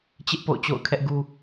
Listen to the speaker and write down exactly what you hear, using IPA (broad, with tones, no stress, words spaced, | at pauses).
t͡ɕɪ˦ʔ po̰˦˨ʊ̯t͡ɕo̰˦˨ʊ̯ kʰɛ˦ʔɡu˦